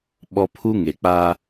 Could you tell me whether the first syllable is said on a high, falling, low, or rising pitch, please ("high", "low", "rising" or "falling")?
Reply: high